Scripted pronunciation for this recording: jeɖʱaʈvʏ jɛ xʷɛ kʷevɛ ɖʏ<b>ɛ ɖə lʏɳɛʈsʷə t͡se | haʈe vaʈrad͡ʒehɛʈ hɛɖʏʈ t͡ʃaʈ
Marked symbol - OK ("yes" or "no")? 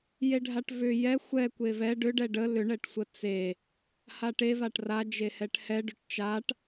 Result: no